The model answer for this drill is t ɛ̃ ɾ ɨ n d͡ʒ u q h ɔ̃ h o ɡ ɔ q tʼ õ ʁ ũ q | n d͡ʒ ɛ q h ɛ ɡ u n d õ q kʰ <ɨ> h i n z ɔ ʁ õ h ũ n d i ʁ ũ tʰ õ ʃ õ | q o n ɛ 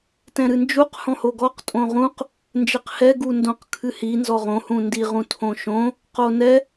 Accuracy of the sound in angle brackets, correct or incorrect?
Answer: correct